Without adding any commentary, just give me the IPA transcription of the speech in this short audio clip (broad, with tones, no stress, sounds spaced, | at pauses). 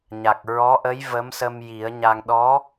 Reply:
ɲ a˨˩ k̚ ɹ ɔ˧˥ ʔ ə˧˥ j v ə˧˥ m s ə˧ m j i˨˩˦ ə̯ ɲ a˧ ŋ ɗ ɔ˧˥